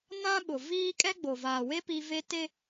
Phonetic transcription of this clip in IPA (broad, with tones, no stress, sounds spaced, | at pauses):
n ã˦ ɓ ʊ˨ v iː˦ kʼ ɛ˦ ɡ͡b o˨ v aː˨ w e˦ p i˦ v e˦ t e˦